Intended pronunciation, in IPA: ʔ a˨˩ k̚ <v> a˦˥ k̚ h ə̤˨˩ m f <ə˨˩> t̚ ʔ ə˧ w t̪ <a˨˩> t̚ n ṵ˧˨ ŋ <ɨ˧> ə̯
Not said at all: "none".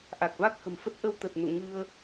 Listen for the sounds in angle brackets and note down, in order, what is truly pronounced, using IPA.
v, ə˦˥, ə˨˩, ɨ˧

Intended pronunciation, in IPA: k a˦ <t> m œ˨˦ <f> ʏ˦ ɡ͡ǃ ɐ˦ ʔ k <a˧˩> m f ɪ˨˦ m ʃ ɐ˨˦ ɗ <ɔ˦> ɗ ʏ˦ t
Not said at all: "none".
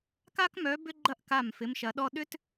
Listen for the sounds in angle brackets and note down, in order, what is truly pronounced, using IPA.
k, b, a˧˩, ɔ˦

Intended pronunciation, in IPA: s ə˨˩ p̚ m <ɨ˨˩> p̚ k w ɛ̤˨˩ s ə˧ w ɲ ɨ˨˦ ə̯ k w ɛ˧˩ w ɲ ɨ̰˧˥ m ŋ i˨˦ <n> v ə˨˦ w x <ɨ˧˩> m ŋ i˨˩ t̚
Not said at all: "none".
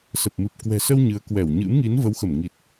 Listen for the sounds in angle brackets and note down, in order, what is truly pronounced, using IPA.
ɨ˨˩, n, ə˧˩

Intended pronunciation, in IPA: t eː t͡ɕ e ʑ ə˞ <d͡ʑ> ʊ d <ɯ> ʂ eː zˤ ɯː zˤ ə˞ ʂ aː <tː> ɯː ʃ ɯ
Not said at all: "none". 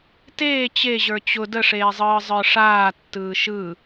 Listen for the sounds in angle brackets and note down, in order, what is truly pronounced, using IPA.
t͡ɕ, ə, tː

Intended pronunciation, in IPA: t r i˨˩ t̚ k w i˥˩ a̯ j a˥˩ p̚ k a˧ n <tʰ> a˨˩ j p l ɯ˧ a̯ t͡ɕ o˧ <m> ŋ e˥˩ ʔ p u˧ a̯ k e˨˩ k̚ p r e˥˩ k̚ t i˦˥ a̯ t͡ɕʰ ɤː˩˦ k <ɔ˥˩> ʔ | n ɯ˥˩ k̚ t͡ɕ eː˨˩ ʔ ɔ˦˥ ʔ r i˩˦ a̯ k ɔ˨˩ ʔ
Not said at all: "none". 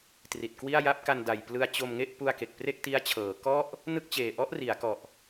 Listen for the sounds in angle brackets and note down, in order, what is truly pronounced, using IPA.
d, m, ɔ˥˩

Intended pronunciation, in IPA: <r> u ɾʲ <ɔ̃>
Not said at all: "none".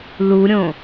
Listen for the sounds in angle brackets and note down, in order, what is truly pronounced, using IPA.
l, õ

